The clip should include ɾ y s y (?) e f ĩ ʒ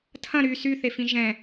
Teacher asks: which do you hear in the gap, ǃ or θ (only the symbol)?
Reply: θ